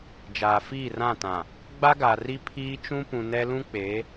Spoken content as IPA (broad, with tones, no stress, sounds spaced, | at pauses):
d͡ʒ aː˨ f iː˦˨ r ã˦˨ t ã˨ | ɡ͡b a˦ ɡ a˨ r i˦ pʰ iː˦ t͡ʃ ũ˦ p ũ˨ n ɛ˦ l ũ˦ k͡p eː˨˦